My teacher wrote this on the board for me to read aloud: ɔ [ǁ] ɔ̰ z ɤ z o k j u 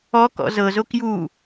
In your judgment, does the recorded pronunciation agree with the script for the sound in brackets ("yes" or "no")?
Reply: no